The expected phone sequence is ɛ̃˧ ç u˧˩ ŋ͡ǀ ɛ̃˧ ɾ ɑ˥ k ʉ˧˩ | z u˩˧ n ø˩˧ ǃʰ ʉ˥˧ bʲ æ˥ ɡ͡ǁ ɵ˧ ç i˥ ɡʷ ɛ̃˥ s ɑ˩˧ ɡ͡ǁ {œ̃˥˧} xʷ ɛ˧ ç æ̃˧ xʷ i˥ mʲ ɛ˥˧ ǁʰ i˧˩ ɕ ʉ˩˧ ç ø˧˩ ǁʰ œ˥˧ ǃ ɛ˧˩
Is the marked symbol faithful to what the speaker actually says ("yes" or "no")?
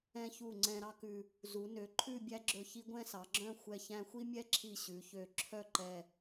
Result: yes